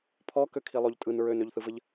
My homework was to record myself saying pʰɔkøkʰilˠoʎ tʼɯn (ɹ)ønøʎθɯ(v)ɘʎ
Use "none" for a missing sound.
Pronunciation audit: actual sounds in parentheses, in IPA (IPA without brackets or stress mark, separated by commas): ɹ, v